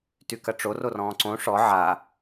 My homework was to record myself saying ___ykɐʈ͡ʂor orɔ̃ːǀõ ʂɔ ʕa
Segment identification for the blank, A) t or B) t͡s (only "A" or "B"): A